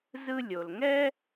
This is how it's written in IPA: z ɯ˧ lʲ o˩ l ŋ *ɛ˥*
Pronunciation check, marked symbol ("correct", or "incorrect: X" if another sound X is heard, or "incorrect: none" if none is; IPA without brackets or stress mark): correct